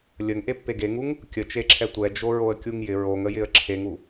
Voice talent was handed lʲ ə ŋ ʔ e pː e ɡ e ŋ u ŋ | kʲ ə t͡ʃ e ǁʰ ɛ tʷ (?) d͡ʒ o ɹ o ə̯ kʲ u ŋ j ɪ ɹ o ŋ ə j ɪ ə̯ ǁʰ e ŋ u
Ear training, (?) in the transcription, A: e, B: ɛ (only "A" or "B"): B